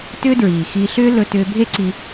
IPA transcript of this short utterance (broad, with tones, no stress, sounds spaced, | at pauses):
t ʏː˦ d ɹ iː˨ x i˧ ɬ ʏː˦ l ɵ˧ t ʏː˧ bʱ e˦ ǀ i˧